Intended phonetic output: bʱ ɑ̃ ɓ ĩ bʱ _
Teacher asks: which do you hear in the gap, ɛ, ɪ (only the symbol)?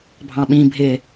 ɪ